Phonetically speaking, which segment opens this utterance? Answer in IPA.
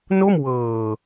n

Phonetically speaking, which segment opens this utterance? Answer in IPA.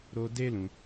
ɾ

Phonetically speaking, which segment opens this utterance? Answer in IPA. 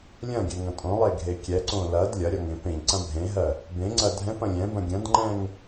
lʲ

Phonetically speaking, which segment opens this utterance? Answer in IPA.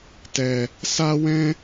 t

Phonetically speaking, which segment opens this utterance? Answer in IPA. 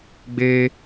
ɡ͡b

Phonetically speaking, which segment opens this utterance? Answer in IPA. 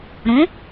ɾ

